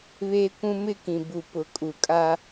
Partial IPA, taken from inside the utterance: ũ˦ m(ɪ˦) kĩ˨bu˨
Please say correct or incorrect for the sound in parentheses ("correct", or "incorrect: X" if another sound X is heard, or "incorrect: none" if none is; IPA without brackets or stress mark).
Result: correct